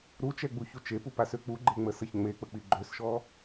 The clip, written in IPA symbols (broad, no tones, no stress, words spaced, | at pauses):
ɾut͡ʃɛ ɡ͡buçut͡ʃepu pasøk͡puɡ͡ǃe ŋ͡məsəçŋ͡mek͡pə k͡piɡ͡ǃøsʃɔ